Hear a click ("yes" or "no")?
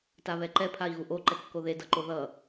yes